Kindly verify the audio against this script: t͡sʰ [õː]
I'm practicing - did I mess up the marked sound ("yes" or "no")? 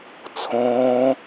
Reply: no